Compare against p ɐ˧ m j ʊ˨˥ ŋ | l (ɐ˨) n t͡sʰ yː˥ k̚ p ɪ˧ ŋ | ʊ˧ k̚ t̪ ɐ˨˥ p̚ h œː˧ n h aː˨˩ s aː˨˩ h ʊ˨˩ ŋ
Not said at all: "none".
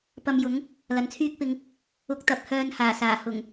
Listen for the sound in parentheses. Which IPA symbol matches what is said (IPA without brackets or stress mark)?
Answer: ɐ˨